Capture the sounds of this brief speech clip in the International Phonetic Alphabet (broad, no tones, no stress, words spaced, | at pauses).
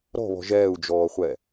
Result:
ɾɔ̤βɔ̤ ʒɛːu̯d͡ʒɔːχʷɛ